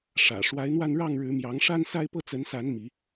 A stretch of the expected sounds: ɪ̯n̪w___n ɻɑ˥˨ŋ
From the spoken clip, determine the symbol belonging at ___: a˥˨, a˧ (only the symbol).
a˧